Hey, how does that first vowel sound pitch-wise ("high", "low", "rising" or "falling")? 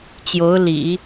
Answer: rising